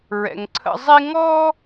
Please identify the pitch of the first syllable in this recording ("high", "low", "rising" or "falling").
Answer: low